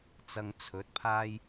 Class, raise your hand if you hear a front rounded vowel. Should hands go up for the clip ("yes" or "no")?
no